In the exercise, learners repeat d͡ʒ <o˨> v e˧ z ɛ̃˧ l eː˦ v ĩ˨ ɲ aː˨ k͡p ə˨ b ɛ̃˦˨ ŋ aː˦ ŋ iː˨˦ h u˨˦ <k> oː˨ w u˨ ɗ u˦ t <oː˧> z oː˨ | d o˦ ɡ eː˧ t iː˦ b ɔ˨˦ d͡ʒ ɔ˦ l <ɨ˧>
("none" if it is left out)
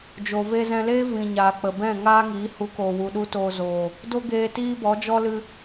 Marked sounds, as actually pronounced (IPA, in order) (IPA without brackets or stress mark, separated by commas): o˨, k, oː˧, ɨ˧